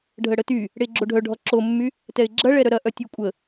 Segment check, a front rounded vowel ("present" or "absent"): present